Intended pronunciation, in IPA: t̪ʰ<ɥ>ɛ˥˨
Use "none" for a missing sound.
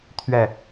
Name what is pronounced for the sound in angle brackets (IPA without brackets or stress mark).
ɥ